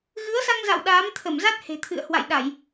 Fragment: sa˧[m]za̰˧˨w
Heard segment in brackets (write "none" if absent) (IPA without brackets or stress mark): ŋ